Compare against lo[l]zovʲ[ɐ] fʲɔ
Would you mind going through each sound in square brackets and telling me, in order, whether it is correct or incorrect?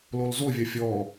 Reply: correct, correct

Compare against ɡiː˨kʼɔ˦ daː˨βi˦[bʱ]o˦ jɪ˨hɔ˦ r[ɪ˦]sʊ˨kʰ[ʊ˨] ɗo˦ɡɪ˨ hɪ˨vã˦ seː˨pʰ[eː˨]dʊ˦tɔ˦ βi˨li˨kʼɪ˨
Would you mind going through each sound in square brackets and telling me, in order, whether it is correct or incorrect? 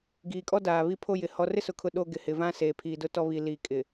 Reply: incorrect: pʰ, correct, correct, incorrect: iː˨

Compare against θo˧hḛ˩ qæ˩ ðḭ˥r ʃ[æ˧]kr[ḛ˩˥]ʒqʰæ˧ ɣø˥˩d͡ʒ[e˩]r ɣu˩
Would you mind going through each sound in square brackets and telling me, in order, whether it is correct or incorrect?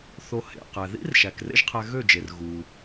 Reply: incorrect: æ˩, incorrect: ḛ˥, correct

